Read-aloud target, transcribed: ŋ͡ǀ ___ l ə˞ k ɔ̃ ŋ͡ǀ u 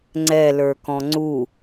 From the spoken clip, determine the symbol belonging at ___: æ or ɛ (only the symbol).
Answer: ɛ